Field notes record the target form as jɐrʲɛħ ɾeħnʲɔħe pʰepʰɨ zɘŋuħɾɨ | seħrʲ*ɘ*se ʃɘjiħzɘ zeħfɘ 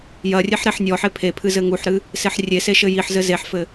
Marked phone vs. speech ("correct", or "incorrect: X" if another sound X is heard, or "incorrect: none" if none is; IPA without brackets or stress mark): incorrect: e